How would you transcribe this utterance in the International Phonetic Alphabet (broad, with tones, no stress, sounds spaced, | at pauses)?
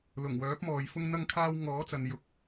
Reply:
l ʊ˨˩ ŋ w œː˨˥ p̚ m ɔː˨ j f ʊ˧ ŋ n̪ ɐ˧ ŋ kʰ aː˧ w ŋ ɔː˨˥ t͡s ɐ˨ n j ʊ˨ k̚